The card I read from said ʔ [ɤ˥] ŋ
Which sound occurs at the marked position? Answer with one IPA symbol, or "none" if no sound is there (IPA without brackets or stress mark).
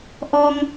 ɔ˥